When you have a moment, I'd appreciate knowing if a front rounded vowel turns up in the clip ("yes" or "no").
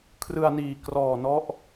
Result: no